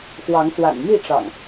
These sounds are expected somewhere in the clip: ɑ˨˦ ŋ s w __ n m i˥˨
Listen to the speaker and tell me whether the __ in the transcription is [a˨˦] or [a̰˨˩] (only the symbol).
a̰˨˩